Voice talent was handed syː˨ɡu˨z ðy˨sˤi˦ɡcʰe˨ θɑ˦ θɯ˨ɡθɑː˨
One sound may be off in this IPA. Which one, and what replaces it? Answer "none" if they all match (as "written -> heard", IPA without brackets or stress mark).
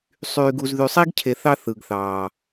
s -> sˤ